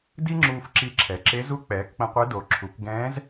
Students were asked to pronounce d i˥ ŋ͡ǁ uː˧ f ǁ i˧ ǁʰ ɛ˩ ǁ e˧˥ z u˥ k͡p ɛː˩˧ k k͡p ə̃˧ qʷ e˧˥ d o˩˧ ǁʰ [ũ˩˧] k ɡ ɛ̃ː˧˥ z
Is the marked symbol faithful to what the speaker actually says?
no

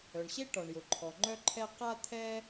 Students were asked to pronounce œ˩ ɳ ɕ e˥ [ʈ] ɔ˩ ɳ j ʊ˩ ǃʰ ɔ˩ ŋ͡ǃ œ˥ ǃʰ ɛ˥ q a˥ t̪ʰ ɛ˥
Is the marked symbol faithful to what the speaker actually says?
yes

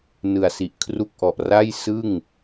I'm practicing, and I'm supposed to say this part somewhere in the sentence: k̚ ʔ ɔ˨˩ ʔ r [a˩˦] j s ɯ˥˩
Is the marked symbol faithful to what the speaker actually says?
no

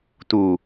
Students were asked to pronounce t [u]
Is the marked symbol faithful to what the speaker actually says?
yes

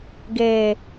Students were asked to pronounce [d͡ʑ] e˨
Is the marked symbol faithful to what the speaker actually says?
no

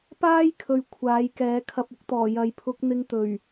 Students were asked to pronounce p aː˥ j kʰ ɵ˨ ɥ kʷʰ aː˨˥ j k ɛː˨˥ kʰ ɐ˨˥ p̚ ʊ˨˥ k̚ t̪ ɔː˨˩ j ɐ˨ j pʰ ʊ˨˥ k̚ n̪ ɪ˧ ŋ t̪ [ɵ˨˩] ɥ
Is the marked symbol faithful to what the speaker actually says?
yes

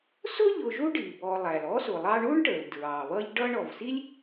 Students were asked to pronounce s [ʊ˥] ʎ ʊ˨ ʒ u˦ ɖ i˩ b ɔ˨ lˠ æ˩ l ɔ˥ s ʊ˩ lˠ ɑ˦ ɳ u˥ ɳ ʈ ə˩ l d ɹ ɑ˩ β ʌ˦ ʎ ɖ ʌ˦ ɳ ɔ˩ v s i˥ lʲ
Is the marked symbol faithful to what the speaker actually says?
yes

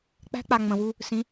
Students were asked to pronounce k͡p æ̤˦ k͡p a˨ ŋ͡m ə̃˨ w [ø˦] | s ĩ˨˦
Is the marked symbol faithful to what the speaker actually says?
no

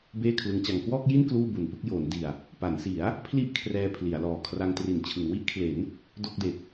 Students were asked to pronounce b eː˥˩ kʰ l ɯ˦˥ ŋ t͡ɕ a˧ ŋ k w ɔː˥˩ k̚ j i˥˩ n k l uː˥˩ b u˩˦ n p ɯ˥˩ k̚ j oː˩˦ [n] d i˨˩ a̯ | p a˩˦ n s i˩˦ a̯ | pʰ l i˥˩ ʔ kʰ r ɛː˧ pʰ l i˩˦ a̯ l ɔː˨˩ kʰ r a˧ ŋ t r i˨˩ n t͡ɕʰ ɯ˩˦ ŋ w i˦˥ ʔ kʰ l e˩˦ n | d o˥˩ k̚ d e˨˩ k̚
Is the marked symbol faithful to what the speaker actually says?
yes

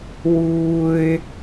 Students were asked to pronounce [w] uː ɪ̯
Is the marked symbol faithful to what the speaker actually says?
yes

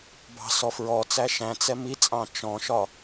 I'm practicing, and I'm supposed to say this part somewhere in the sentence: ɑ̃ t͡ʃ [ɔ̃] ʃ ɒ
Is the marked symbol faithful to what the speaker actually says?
yes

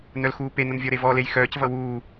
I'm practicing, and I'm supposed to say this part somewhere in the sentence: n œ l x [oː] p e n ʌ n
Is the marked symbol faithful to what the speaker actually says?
no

